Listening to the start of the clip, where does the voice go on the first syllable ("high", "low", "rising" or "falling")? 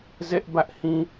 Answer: high